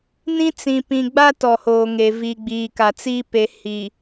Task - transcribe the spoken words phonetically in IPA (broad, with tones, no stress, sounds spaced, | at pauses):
n ĩ˦ t͡s ĩ˨ p ĩ˨ ɡ͡b a˦ t ɔ˨ h oː˨ ŋ e˨ v i˨ ɡ͡b iː˨ k a˨ t͡s iː˦ p e˨ h i˨